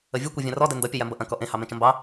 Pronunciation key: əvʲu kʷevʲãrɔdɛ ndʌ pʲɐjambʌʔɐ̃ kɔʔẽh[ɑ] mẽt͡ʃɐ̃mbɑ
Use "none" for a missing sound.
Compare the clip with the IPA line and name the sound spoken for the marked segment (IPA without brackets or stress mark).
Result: ɑ